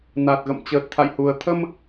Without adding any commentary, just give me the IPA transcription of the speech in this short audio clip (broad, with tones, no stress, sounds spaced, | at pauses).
n a˨˩ t̚ ɣ ə̰˧˨ m t͡ɕ əː˨˩ t̚ t̪ʰ a̰˧˨ j h u˨˩ ə̯ t̪ʰ ə˧ m